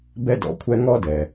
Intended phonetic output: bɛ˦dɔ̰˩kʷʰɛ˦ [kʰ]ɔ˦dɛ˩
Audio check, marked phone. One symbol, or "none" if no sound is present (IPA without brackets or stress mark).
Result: ŋ